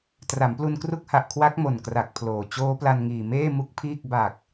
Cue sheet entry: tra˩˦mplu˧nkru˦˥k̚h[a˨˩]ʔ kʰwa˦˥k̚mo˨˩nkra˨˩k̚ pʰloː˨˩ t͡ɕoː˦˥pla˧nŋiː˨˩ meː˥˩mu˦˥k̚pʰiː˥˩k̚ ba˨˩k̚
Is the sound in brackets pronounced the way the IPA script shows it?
yes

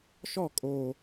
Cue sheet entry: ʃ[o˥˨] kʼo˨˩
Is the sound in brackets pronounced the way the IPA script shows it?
no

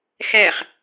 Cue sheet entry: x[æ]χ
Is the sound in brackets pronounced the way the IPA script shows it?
yes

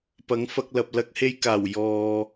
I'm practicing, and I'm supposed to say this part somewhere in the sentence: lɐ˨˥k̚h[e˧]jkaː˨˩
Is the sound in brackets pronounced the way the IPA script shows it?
yes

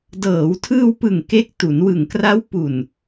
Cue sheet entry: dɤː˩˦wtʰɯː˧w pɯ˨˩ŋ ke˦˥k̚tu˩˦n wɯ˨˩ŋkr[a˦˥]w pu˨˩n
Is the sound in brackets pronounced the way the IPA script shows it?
yes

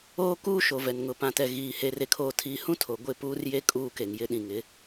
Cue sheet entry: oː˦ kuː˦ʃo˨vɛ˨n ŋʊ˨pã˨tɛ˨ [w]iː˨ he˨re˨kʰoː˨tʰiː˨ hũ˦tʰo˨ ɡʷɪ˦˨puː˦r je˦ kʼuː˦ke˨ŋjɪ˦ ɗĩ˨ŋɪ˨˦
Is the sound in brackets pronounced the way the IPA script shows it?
no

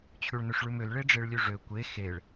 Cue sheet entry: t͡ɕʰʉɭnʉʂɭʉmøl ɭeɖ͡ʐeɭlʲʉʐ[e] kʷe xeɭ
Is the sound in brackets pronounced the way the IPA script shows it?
no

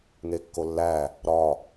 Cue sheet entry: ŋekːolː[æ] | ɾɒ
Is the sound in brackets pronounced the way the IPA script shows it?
yes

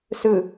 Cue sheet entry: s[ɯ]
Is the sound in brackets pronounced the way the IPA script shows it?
yes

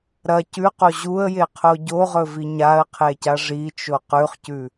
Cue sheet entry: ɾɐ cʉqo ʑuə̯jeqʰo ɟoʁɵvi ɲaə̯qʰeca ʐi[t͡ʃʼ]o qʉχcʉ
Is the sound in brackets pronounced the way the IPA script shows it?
no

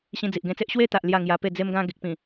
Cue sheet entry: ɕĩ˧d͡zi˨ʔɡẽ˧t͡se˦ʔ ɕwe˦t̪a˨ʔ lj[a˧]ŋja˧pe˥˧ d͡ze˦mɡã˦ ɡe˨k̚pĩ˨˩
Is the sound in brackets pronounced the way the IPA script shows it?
no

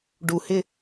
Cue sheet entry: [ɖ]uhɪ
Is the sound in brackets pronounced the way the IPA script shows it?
yes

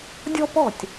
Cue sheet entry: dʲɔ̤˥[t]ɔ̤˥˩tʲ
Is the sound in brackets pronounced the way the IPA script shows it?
no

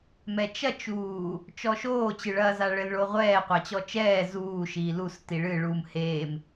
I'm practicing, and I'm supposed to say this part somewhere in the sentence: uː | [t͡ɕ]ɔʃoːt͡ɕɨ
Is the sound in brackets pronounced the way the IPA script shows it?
no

